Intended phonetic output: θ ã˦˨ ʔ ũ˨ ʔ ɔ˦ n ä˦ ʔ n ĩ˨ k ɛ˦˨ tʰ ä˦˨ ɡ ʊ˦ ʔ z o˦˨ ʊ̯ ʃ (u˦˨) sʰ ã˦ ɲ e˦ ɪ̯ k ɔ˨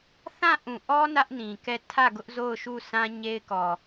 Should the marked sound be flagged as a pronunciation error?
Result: no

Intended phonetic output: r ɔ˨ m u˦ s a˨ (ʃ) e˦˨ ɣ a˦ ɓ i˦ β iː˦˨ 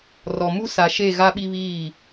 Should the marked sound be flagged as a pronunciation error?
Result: no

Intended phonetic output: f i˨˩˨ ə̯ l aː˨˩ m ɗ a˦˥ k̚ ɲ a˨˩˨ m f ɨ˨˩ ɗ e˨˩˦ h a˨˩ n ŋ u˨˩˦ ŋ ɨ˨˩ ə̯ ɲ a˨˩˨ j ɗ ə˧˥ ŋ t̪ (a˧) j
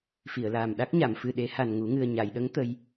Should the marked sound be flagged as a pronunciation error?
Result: yes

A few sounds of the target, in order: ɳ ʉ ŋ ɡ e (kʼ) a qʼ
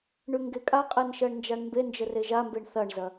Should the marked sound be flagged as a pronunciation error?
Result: no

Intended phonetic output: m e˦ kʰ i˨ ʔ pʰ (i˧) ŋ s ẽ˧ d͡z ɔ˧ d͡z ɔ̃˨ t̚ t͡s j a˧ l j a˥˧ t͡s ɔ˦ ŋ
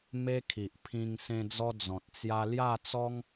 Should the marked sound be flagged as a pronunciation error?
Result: yes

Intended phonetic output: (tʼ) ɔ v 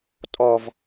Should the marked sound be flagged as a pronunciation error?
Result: no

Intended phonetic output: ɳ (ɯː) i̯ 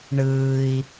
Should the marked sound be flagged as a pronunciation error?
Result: no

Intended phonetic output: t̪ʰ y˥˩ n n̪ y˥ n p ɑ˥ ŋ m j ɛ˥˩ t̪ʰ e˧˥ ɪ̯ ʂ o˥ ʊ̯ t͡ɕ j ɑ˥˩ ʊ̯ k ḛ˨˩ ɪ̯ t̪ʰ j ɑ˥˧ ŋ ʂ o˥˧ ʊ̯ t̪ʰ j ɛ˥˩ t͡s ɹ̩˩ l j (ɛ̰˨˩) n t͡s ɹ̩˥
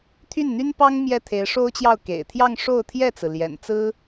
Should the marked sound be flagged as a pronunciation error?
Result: no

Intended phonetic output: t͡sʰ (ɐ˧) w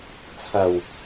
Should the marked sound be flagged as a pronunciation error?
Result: yes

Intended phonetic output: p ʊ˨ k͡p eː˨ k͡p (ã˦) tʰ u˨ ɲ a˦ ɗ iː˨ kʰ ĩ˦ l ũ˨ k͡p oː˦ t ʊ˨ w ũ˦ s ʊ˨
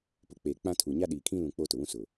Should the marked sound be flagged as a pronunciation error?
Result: no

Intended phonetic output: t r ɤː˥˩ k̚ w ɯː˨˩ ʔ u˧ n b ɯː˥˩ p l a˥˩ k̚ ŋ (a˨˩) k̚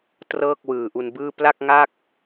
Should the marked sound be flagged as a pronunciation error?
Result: yes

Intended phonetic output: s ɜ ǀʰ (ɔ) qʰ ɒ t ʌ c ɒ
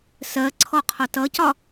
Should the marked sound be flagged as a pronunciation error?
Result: no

